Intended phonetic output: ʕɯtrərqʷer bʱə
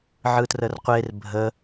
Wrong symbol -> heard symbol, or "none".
none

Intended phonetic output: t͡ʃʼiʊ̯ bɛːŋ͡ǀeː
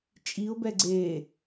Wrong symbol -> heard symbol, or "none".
ŋ͡ǀ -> ɡ͡ǀ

